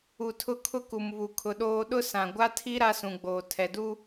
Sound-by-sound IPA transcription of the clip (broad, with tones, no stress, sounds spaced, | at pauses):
u˨ tʰ ʊ˦ kʰ ʊ˦ k u˨ m β u˨ kʰ ʊ˨ ɗ oː˦ ɗ ʊ˦ s ã˨ ɡʷ a˦ tʰ i˦ ɾ a˦ s ũ˨ ɡ͡b oː˨ tʰ ɛ˨ d u˦